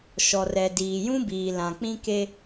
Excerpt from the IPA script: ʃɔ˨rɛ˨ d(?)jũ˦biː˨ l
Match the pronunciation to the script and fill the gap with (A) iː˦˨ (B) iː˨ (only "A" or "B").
B